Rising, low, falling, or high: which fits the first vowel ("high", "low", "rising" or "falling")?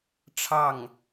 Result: falling